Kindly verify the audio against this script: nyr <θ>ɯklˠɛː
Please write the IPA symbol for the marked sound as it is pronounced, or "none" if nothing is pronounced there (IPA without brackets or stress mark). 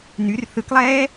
θ